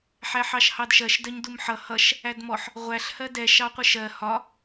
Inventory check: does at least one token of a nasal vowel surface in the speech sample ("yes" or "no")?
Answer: no